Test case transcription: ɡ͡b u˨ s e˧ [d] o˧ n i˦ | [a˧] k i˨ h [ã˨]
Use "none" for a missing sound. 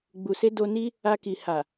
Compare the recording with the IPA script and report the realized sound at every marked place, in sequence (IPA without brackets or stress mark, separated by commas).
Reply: d, a˧, a˨